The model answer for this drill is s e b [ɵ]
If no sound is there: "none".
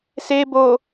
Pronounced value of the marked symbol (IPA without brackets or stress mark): o